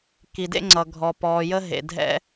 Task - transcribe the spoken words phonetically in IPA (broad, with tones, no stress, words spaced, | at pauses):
ki˨dḛ˦ŋ͡ǀʌ˨ ɡʱɔ˨pɔː˨jə˦ ɦḛ˨dʱɛ̰˦